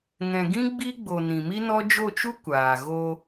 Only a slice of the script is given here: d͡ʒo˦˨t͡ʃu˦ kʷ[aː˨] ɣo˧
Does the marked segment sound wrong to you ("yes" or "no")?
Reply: no